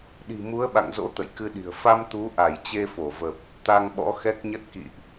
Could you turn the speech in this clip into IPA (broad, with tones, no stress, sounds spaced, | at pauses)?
ɗ i̤˨˩ m u˨˦ ə̯ ɓ a̰˧˨ ŋ z o̰˧˥ t̪ ə̰˧˨ j k ɨ˧ ɗ i̤˨˩ ə̯ f a˧ m t̪ u˨˦ ʔ a˧˩ j t͡ɕ e˧ f o˧˩ v ə˨˩ p̚ | t̪ a˧ ŋ ɓ ɔ̰˧˥ x ɛ˦˥ k̚ ɲ ə˦˥ t̚ k ḭ˧˨ ʔ